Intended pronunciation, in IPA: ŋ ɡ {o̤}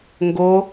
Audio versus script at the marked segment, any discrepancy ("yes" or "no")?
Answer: yes